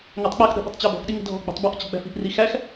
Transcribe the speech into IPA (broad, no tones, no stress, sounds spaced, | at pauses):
ŋ æ tˤ k͡p ə x ɗ ə̤ ɓ ə̤ tˤ t͡ɕ æ b ɔ̤ x ɗ i ŋ ə̤ dʱ ɔ̤ ɡ͡b ə̤ tˤ b ɔ ʔ t͡ɕ ə̤ ɡ͡b æ̤ f i̤ ʔ r i x æ x